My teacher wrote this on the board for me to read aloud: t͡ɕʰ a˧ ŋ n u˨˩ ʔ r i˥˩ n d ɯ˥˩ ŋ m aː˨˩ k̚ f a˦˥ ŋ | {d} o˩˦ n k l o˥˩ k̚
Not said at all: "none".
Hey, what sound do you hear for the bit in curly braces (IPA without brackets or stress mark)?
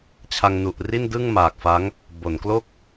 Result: b